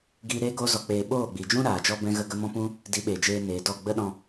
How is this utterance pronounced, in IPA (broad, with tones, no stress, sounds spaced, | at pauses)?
ɡ iː˧ ɾ eː˦ ɡ oː˦ z ɔ˧ k͡p eː˧ ɓ oː˦˨ ɡ͡b i˨ d͡ʒ ũ˦ ɾ aː˨ d͡ʒ ɔ˦ b ɛ̃˦ ɣ ə˦ ɡ ə˦ m ɔ̃˦ p ũ˦ | d i˨˦ ɓ eː˨ d͡ʒ eː˧ n eː˨ d ɔ˦˨ ɡ͡b ə˦ ɗ ɔ̃˧